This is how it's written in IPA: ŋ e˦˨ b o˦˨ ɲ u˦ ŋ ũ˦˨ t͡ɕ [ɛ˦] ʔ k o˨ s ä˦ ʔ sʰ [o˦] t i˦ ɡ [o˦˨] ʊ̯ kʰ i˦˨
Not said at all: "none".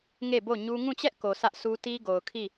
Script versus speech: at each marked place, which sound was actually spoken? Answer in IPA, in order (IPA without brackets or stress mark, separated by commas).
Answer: ɛ˦, u˦, o˨